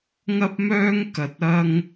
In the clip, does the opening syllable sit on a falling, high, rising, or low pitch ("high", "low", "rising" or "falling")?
high